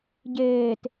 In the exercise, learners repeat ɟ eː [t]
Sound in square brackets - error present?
no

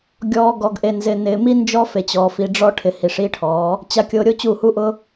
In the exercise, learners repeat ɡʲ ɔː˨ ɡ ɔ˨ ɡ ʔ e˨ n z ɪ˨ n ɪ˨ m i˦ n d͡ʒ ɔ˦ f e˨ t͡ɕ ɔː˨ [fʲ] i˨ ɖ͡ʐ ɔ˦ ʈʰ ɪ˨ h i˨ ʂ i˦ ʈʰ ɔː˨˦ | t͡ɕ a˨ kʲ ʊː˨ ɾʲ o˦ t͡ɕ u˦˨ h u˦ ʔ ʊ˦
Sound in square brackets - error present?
yes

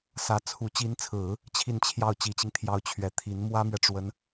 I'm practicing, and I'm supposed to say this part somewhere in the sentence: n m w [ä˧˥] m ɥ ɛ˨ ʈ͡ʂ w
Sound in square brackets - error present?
yes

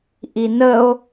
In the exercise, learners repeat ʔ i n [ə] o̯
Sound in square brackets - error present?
no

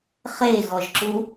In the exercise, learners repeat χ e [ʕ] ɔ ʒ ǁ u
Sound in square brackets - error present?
yes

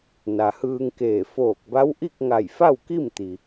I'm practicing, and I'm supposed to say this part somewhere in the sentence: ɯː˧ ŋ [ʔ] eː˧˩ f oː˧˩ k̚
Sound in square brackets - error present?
yes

